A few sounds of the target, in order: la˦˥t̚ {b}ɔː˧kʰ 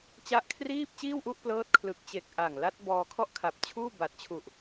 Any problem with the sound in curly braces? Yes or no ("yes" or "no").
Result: no